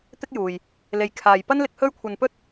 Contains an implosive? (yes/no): no